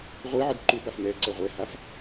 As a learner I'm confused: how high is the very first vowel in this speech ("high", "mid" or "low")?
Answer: high